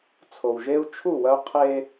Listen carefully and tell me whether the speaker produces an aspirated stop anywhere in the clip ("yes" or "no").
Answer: yes